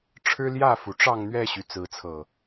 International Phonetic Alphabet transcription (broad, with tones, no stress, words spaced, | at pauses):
ʈ͡ʂʰɻ̩˦ljä˥˨fu˩ʈ͡ʂɑ˥˨ŋ n̪ɥɛ˥˨ɕy˩ t͡sɹ̩˨˦t͡sʰɤ˨˩